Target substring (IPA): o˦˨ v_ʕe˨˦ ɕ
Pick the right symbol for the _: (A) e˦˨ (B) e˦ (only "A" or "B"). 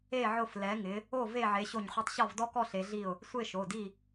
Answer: A